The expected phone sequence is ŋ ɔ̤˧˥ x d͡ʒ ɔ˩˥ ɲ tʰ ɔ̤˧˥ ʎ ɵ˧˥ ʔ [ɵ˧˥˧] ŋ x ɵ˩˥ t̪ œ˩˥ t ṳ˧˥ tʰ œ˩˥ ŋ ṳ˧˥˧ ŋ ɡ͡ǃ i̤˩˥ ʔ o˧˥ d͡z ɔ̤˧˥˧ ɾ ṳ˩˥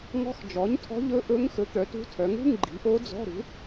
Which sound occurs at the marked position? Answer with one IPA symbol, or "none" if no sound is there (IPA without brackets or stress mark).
ɵ˧˥